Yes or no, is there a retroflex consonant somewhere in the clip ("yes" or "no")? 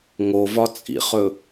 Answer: no